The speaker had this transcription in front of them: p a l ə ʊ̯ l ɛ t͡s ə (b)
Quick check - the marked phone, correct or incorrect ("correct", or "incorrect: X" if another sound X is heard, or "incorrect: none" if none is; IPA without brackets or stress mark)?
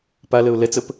incorrect: p